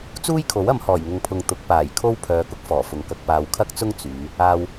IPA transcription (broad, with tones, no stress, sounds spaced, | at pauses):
t͡s uː˥ j kʰ o˨˥ w ɐ˨˧ m h ɔː˨˩ j ŋ ʊ˨ ŋ pʰ ʊ˨ ŋ t̪ ʊ˨˥ k̚ p aː˨˩ j kʰ o˥ w pʰ œː˨˧ k ʊ˥ k̚ f ɔː˨˩ f ʊ˨ ŋ k ɐ˧ k̚ p aː˨ w kʰ ɐ˥ k̚ t͡s ʊ˥ ŋ t͡s yː˨˧ | aː˨ w